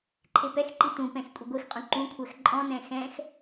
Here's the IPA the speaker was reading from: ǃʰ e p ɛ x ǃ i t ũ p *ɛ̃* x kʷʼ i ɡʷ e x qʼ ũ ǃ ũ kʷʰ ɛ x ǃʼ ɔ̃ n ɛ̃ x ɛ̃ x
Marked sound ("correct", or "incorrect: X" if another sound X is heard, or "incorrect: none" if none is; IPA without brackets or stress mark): correct